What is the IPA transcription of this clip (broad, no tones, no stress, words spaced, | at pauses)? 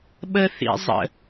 ɓəθḭ zˤə̰